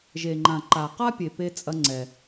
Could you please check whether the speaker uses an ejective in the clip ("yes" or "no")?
yes